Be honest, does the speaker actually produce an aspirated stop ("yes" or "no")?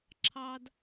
yes